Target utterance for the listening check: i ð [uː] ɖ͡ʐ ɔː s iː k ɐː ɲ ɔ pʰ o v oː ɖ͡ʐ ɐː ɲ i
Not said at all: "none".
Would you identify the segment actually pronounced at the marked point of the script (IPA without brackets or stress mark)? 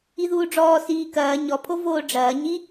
uː